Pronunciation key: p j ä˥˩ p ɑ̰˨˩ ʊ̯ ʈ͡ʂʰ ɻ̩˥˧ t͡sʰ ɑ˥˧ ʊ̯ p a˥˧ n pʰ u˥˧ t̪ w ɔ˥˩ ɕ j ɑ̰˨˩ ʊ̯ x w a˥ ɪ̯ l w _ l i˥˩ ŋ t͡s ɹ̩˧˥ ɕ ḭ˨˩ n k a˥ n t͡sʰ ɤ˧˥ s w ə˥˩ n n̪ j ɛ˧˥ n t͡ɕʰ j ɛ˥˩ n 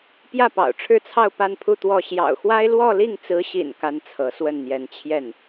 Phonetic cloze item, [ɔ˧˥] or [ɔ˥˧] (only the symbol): ɔ˥˧